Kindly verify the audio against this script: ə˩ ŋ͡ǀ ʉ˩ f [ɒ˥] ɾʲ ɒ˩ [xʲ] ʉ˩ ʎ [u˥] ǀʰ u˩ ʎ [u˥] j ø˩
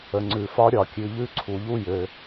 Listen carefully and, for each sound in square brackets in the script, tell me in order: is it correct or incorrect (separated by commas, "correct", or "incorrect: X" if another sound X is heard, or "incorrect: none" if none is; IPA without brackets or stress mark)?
correct, incorrect: kʲ, incorrect: ʉ˥, correct